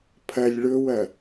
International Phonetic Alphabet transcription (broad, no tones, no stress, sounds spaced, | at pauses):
pʰ ɐ lʲ ɭ ɵ w ɐ